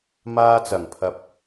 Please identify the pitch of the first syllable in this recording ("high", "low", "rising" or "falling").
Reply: high